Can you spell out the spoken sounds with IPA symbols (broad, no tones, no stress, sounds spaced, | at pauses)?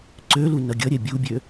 ǀ ø l u n ʌ ɡʲ ʌ ɾʲ ɛ bʲ u bʲ ø